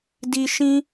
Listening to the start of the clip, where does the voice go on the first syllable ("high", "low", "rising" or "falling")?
high